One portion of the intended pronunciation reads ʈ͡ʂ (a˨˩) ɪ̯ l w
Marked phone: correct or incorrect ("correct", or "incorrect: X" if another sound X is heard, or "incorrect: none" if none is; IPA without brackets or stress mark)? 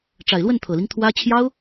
correct